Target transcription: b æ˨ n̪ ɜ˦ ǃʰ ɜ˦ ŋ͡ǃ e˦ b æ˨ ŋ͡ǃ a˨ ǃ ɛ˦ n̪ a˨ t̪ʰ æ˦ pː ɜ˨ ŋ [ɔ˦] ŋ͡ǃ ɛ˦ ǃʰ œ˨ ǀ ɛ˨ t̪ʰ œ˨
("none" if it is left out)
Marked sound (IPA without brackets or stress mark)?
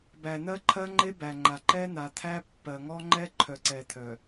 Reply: ɔ˦